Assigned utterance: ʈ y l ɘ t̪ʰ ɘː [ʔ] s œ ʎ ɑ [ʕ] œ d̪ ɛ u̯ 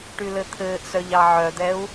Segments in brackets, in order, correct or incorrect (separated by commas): correct, correct